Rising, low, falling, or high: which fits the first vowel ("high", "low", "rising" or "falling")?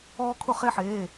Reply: high